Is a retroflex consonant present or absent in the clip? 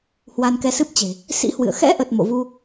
absent